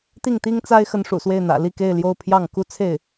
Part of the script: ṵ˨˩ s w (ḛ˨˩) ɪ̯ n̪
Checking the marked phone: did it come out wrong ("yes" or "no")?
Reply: yes